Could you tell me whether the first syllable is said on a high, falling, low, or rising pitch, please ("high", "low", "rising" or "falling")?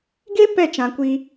high